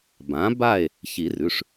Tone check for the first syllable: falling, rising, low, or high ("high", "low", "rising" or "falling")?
rising